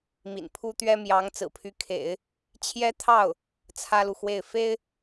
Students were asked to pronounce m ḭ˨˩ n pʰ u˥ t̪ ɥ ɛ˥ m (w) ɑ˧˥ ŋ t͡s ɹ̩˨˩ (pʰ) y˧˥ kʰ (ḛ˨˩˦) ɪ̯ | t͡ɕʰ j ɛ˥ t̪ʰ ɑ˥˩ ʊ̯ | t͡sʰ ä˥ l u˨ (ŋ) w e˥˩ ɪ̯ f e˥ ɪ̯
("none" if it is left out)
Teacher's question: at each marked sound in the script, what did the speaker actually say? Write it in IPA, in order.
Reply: j, pʰ, ḛ˨˩˦, x

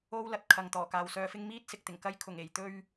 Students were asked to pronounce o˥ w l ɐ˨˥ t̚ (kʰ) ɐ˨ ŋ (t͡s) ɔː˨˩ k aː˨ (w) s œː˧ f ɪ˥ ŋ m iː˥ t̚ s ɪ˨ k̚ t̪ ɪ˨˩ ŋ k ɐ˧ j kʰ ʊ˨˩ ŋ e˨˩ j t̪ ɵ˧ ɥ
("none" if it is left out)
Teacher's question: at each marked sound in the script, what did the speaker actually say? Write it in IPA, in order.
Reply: kʰ, t̪, w

